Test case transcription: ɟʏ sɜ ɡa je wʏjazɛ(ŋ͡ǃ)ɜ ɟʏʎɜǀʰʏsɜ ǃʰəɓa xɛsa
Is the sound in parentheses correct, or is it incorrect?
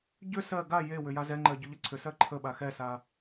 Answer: correct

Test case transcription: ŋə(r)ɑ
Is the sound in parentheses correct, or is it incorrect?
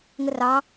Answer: correct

